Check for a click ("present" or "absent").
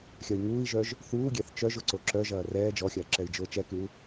present